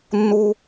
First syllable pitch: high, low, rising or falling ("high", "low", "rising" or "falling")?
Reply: high